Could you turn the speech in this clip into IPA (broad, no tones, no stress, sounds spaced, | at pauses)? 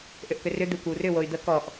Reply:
ʔ ʏ ʔ k ʏ r ʏ d̪ ɪ kʷ ɪ u̯ r ʏ w o y̯ d̪ ə k ɔ ʔ